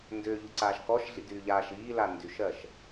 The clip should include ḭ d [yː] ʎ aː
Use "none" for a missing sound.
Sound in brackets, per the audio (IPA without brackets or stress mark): yː